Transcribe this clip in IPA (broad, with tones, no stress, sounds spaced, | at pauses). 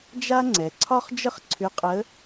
d͡ʒ a˥ ŋ͡ǀ ɛ˩˧ ǀʰ ɒ˥ χ d͡ʒ ə˥ χ ǀʰ ʏ˧˥ qʼ ə˧˥